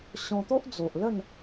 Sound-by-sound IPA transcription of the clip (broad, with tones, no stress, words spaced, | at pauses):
ɕɔ̃˧t̪o˦ʔ d͡zo˨ʔlə˥˧n